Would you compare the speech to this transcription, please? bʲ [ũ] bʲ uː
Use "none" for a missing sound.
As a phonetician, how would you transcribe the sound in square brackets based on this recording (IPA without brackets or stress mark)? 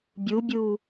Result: u